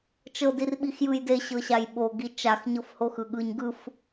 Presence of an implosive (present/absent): present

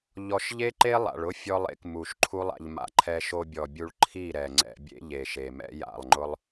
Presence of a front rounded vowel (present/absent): absent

